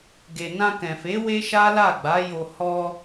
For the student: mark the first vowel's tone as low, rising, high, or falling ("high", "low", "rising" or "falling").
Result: low